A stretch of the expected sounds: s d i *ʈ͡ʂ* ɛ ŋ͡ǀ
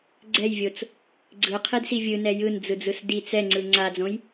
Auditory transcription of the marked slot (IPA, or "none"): t͡s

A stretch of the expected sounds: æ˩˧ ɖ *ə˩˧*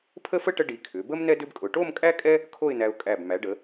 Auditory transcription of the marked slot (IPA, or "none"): ə˩˧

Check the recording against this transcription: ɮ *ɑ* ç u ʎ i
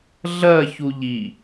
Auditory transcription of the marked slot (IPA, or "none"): ɐ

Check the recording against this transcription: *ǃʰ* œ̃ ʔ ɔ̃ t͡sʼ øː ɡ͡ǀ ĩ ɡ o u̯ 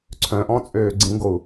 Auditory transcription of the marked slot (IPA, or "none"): ǀʰ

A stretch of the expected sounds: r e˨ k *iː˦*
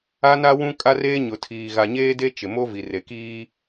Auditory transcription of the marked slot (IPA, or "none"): iː˦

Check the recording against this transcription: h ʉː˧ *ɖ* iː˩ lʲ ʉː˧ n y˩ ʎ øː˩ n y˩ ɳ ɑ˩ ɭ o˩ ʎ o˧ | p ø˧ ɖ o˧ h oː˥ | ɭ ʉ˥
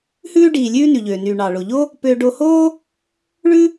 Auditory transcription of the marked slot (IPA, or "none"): ɖ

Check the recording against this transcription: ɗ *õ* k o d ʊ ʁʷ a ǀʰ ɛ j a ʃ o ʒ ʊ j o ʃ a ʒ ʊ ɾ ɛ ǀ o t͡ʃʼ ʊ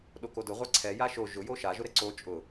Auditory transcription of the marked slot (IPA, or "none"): o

